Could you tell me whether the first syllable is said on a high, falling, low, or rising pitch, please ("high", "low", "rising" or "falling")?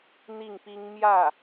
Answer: falling